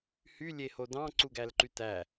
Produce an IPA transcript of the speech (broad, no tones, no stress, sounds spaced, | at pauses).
h y lʲ e h o d ɑ̃ ǀ u ɡ æ l ǃ y t æ